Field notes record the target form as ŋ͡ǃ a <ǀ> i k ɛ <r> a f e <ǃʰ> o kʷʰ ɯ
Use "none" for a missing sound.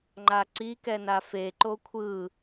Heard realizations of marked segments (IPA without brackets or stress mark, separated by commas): ǀ, n, ǃ